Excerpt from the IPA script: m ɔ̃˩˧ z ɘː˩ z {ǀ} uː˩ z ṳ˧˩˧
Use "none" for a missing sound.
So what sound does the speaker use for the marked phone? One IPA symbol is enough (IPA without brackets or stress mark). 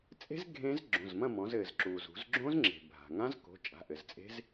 ǁ